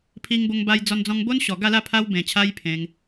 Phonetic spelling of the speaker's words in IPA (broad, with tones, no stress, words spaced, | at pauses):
pʰi˧ŋbo˧ŋba˧j d͡zɔ˧nd͡zɔ̃˧ŋbo˦nɕɔ˨˩ ɡa˥˧la˥˧ pʰa˧wbẽ˨˩t͡ɕʰa˧j pʰẽ˧ŋ